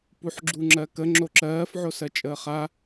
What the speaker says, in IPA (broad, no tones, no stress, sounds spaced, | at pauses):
p u ħ ɡ͡ǁ u ŋ͡ǁ ɜ k ə ŋ͡ǁ o ǁ ɜː f ʕ o s ɜ t͡ʃʼ əː χ a